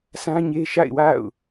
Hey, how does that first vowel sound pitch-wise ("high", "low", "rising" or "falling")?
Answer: high